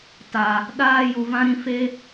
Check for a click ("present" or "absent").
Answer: absent